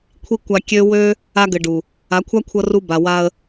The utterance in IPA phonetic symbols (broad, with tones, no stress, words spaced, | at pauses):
kʷʰi˦ kʷa˧kʲø˦ wø˦ | a˧ɡɘ˨ɖu˨ | a˨˦kʷʰa˦kʷʰʌ˧ ru˧ba˨wa˧ə̯